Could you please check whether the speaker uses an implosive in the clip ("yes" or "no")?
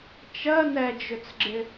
no